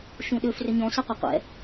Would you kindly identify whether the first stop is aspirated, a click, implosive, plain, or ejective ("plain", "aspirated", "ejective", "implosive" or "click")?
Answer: implosive